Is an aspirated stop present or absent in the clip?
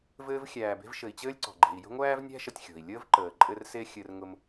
absent